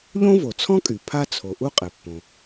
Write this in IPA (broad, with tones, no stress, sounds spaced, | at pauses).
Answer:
ʎ õ˥ v o˩ t͡sʰ ɔ̃˥ kʼ y˩ pʰ a˥ t͡sʰ o˩ ʔ u˥ qʼ ɛ˩ pː õ˩